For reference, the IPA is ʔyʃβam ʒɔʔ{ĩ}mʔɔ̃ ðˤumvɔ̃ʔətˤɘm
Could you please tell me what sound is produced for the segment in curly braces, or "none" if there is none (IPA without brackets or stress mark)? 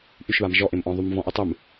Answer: ẽ